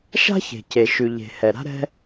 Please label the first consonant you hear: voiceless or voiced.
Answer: voiceless